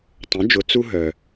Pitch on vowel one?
rising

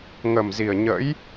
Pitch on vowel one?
low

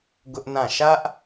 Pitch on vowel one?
high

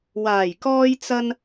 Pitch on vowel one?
low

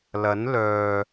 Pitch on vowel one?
rising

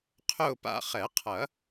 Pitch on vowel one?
falling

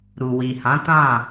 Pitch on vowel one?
low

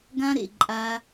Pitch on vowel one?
high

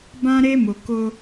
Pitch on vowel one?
high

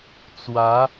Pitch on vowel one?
rising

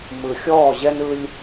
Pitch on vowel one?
low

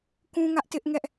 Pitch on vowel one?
high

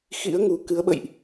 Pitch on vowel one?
rising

